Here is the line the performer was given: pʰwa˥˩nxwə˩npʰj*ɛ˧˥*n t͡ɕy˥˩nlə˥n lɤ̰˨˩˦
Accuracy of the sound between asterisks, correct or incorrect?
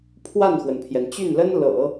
incorrect